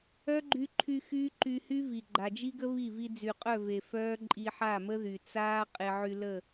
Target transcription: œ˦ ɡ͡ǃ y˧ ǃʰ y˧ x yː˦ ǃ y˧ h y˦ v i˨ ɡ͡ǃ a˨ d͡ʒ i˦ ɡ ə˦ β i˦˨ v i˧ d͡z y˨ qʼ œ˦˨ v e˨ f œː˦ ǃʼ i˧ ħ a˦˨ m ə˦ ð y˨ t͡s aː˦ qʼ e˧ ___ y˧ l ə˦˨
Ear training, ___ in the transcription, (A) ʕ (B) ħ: A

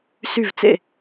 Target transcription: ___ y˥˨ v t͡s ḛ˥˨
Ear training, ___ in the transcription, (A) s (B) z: A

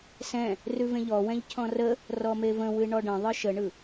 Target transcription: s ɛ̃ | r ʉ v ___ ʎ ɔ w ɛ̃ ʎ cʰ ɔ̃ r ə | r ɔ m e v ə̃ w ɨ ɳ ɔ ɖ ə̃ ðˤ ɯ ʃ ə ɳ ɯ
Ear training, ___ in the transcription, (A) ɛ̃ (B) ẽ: B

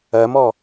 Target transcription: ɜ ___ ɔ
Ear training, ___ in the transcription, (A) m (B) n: A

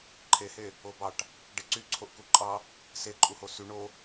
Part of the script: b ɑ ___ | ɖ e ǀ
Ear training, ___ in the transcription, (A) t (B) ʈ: B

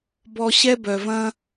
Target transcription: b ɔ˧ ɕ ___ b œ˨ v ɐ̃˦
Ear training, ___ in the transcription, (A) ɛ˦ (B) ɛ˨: A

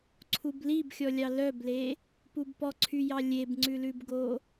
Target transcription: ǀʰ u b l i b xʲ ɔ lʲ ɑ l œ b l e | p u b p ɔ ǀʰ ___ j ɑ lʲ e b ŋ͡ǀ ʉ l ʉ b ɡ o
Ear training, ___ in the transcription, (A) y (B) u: A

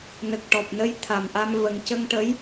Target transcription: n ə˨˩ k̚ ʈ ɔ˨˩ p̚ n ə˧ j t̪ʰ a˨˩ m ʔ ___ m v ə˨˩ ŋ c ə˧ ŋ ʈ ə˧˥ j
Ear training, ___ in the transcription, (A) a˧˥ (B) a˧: B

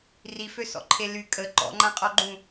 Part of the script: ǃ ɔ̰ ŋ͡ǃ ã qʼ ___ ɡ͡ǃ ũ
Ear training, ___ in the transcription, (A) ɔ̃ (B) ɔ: B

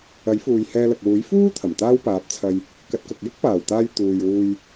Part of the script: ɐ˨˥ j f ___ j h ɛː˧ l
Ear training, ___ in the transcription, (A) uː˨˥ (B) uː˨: B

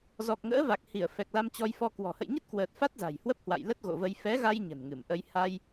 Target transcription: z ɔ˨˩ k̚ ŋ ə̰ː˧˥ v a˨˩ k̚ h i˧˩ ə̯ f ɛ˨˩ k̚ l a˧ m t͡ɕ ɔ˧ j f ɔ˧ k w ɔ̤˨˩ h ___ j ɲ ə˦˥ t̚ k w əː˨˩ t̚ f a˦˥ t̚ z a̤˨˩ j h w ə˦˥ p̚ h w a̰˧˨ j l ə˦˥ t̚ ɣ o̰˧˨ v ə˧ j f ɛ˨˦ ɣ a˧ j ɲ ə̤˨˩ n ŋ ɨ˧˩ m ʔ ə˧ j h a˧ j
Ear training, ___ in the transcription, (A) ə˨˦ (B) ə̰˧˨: B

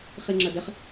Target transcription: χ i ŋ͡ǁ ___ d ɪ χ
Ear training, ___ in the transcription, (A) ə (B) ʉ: A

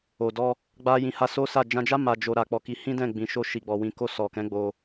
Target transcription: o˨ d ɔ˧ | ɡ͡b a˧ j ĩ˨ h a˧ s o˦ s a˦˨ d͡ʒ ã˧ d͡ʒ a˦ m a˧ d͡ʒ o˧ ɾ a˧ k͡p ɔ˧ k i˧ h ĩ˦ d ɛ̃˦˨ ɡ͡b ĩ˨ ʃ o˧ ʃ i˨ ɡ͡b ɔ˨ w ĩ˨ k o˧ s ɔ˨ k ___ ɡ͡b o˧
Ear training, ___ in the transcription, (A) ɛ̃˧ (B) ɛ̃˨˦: B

